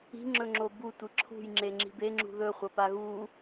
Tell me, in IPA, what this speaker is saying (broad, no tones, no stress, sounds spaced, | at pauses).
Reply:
i̤ ŋ͡ǁ ɵ ŋ͡ǁ o b u tʷ ɨ ǁʰ ṳ j ŋ͡ǁ e ŋ͡ǁ i̤ b e ŋ͡ǁ ṳ ð ɵ χʷ ɐ p a ɣ u